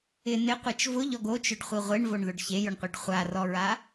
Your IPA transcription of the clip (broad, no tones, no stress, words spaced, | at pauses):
ɪ nɪqʷet͡ʃ vʊʎɔɡ ot͡ʃʊɖχʷi ʁʷeɳvoɳðʊɖ çejʊɳqʷiɖ χʷarɔɹa